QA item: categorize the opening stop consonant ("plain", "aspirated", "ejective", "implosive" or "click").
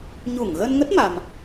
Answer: plain